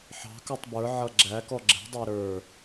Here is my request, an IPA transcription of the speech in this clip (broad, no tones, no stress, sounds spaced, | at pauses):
ħ ɑ̤ k ə˞ tˤ b ə˞ ʕ ʌ ɡ͡ǁ æ k ɔ ɡ͡ǁ ɛ̤ dˤ æ ɾ ə˞